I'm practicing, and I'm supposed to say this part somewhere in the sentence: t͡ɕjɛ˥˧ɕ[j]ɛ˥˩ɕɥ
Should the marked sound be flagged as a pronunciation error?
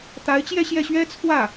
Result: no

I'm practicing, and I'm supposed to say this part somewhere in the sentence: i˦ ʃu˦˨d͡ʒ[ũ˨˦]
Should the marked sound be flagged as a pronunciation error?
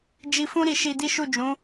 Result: no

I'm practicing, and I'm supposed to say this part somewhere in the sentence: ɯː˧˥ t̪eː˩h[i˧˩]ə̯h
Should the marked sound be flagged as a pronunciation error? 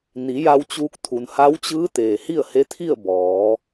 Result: yes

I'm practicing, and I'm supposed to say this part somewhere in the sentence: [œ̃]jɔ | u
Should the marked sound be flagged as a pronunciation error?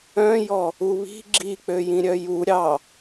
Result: no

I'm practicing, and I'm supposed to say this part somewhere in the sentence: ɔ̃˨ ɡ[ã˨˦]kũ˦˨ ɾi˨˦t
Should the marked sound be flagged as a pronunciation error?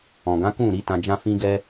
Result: no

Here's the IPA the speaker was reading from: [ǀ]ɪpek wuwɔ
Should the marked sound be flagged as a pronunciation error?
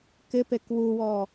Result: yes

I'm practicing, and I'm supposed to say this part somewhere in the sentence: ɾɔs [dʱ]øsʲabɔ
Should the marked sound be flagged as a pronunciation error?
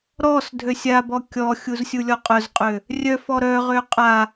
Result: no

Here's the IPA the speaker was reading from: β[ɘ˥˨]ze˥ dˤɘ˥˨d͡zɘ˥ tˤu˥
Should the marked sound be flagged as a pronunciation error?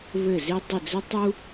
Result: no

